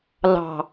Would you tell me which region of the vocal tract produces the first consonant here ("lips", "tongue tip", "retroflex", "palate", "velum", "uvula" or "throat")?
tongue tip